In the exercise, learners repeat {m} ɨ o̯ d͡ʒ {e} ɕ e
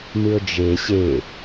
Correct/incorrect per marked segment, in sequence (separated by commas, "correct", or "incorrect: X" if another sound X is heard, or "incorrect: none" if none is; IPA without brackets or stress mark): correct, correct